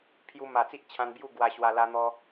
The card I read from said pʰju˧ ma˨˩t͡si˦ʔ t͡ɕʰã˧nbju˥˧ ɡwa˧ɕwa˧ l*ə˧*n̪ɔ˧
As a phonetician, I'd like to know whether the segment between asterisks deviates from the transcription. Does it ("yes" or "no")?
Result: yes